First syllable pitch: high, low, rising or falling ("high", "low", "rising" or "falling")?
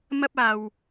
high